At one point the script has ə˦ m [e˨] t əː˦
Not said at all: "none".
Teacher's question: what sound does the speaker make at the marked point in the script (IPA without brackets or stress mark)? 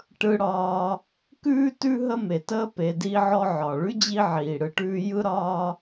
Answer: e˩